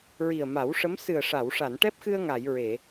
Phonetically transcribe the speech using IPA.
ɹi˨˩ə̯ma˨˩˦wʂə˧˥m sɨ˨˩ə̯ʂa˨˩˨wʂa˨˩˨n ʈɛ˦˥p̚xɨ˧ə̯ŋa˨˩˨j ɹe˨˩˨

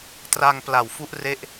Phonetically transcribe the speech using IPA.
tra˧ŋ pla˨˩w fu˦˥ʔre˦˥ʔ

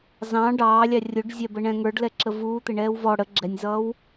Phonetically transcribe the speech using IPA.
zɑ̃ ɖɑːlʲɑ rʲʊɖzʲæbəɳɛ̃ ŋə˞ɖlɛǁə vuːt̪ɪɳɛːw vɔ ɽə ɡ͡ǁɛnʲzʌːw

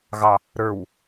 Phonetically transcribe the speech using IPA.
ɣɑ | ɾə˞w

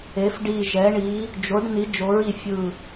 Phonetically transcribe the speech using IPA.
e˩˧f ɖi˨˩ ʒɛ˩˧ɳi˩˧ | d͡ʒo˩˧ɖ ni˩˧d͡ʒo˩˧ɹi˨˩ fʲɯ˨˩

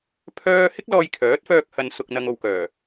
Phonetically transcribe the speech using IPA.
pʰœː˥ hɪ˥k̚lɔː˧jkʰœː˨˥t̚fœː˧k̚ hɐ˨n sʊ˨k̚n̪ɐ˨ŋo˨wkœː˨˩

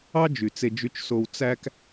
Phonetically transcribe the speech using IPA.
ɑ˥d͡ʒy˩t͡se˨ d͡ʒy˨t͡ʃso˨w t͡sæ˥k

